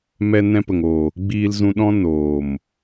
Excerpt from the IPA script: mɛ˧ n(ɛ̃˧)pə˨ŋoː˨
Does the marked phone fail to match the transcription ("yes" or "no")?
no